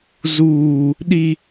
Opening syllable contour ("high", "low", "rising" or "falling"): high